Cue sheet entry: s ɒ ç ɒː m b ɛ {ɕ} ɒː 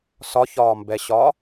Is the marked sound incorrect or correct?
correct